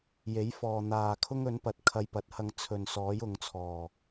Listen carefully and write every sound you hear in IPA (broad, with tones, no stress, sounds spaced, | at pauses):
j e˨˥ j f ɔː˨ n̪ aː˨ kʰ ʊ˥ ŋ ɵ˨˥ n p ɐ˨ t̚ kʰ ɐ˧ j p ɐ˨˥ t̚ h ɐ˧ ŋ t͡sʰ ɵ˨ n s ɔː˨˥ j ʊ˨ ŋ t͡sʰ ɔː˨˩